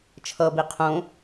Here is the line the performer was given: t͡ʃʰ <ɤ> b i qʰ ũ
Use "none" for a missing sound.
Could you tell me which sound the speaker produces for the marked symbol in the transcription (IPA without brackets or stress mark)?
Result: ɤ